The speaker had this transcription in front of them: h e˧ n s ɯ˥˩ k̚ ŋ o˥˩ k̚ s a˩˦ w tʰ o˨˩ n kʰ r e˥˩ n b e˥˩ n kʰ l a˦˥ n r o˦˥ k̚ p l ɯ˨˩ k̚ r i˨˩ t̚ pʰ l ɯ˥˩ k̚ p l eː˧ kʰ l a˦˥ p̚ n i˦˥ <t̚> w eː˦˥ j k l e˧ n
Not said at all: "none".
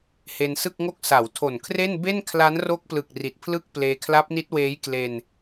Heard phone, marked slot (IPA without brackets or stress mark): t̚